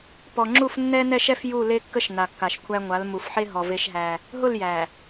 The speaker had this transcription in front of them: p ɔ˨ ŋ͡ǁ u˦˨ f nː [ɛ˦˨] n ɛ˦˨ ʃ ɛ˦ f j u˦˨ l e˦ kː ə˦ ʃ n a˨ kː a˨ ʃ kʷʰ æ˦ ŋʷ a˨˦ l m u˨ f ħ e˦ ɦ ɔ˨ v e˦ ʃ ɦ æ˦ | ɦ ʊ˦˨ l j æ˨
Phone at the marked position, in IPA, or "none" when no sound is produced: ɛ˦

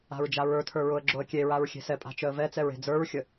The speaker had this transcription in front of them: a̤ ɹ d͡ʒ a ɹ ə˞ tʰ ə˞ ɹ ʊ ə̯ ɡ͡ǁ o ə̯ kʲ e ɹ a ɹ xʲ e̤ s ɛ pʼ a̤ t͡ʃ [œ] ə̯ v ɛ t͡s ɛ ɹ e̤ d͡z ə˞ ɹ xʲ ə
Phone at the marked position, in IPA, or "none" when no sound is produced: œ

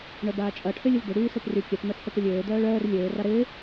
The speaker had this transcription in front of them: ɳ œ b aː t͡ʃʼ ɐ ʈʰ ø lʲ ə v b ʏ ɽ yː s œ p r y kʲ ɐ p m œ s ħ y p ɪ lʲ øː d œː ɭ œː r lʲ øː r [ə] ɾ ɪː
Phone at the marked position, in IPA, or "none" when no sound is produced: a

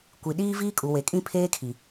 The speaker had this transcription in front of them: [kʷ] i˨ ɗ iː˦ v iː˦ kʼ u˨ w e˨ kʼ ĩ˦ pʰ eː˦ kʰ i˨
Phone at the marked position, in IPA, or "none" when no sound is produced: kʷ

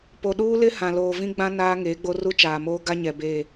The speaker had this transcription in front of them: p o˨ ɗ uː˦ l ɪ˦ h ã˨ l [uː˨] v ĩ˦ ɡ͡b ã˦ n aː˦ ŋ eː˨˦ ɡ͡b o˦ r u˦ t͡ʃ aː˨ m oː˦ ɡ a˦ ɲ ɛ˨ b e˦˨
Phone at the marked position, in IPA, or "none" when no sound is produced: oː˨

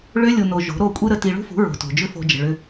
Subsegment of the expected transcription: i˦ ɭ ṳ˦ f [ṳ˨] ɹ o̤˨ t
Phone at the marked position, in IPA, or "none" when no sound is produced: ṳ˨˦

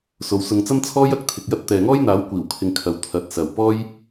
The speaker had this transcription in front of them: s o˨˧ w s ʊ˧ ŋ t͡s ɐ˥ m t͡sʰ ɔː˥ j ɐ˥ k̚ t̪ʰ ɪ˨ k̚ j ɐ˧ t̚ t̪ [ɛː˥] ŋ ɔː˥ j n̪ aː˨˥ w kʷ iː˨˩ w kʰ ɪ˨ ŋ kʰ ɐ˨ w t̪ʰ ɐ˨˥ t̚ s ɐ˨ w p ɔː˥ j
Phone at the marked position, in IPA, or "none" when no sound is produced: ɛː˨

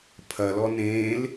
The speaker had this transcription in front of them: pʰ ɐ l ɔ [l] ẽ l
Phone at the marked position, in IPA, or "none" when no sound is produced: n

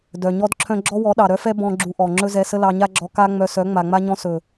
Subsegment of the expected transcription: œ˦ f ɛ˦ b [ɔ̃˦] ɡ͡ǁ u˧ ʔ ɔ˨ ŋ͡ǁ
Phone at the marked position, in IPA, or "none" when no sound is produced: ɔ̃˦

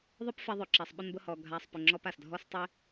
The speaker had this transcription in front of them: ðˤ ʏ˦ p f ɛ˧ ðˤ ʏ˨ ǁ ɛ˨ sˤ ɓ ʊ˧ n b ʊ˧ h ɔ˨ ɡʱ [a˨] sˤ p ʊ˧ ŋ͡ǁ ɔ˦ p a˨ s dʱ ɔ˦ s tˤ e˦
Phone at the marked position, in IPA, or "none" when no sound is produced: a˧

